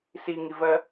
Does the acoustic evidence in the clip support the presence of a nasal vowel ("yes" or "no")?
no